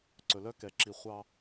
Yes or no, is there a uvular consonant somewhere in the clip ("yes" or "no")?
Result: yes